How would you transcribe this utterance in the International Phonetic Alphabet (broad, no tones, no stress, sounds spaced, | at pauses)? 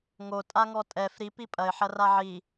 ŋ o tʼ a ŋ ɔ tʼ ɛ f ɾ i p i pʼ ɐ ɪ̯ ħ ɐ r a ʕ i